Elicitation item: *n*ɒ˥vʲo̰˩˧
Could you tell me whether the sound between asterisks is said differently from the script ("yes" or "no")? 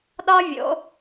yes